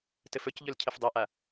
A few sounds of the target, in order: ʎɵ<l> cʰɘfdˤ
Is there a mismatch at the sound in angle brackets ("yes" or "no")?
no